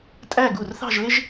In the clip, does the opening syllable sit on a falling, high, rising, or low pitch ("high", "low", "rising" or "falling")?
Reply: falling